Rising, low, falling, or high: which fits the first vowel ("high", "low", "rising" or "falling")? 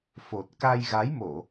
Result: low